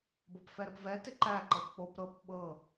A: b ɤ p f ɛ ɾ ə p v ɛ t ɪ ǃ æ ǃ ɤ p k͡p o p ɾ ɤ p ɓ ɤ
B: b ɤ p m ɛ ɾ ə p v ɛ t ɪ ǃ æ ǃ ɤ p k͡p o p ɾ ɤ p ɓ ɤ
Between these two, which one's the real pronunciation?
A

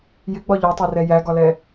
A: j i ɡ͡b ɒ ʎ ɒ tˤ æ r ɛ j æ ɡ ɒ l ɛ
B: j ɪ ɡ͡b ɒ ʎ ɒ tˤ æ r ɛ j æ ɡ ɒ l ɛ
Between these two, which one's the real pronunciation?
B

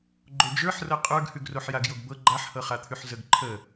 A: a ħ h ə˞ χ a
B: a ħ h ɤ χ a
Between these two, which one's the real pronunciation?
B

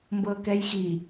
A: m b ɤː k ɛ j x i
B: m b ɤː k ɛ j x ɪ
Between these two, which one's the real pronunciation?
A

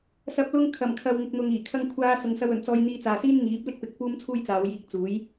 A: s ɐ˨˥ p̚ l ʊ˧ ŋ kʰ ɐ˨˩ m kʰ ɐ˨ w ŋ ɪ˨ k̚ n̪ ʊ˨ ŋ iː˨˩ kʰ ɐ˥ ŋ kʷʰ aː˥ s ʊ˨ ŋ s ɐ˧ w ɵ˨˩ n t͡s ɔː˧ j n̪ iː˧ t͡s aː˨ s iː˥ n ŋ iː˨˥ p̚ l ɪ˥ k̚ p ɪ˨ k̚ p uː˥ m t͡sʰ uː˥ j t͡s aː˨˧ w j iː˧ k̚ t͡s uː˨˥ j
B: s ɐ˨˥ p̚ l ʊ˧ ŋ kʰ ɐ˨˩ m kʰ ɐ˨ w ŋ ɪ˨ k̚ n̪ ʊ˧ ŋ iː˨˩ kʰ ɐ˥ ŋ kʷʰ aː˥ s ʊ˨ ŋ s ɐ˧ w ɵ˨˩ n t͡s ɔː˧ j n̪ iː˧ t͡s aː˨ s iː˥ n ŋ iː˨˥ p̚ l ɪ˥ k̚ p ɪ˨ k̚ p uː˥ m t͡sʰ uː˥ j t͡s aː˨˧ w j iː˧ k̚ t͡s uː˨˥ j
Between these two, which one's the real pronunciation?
A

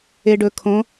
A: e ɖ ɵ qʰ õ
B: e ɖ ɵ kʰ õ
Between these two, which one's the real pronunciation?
B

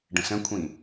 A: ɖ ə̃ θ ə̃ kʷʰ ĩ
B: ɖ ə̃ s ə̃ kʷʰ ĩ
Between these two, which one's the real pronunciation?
B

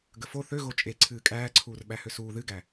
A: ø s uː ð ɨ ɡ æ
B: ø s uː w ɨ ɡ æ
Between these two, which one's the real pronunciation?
A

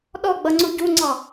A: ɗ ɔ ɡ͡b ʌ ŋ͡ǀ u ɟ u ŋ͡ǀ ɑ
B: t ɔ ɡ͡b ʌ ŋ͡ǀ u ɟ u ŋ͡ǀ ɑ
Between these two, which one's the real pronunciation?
A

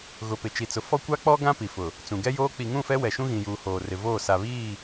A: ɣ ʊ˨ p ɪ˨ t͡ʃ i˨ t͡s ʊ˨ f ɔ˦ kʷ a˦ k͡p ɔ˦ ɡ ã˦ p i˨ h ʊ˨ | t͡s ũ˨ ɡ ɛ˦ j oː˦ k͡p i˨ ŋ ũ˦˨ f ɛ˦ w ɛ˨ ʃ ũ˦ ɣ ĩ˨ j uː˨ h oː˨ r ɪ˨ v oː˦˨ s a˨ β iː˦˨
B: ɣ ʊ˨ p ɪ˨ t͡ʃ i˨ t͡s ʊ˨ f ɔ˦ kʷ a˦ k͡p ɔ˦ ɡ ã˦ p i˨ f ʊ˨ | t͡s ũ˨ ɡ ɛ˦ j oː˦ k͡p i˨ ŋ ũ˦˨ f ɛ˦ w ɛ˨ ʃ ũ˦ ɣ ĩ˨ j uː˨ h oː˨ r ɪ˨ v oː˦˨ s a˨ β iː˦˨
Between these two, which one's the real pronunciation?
B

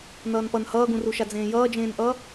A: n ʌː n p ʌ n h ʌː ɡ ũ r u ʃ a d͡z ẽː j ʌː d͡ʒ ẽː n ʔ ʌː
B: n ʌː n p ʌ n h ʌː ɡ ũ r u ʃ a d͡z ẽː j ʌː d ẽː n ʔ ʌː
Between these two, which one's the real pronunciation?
A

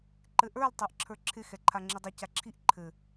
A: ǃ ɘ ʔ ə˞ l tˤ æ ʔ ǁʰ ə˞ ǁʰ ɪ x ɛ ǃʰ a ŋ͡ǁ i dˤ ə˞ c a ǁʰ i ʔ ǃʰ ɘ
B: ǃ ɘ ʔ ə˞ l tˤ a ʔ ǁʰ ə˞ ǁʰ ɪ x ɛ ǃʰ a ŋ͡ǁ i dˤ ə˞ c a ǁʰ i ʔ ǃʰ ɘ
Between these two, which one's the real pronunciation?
A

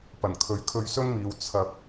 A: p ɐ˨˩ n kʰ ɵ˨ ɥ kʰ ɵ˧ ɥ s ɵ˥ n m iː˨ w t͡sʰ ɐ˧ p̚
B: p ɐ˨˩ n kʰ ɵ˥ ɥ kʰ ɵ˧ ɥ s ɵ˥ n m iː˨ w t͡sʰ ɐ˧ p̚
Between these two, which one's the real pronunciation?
A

